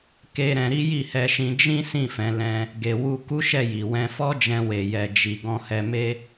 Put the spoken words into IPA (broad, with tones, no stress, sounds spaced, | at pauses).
k e˧ ɾ ɛ̃˧ ɾ i˦ j i˦˨ h ɛ˧ ʃ ĩ˧ d͡ʒ ĩ˦ s ĩ˦˨ f ɛ̃˨˦ l ɛ̃˧ | ɡ e˨ w u˧ k u˦ ʃ ɛ˦˨ j i˨ w ɛ̃˧ f ɔ˦ d͡ʒ ɛ̃˧ w e˨ j ɛ˨ d͡ʒ i˧ ɡ ɔ̃˧ h ɛ˧ m e˦